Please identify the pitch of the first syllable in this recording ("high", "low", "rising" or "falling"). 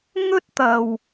high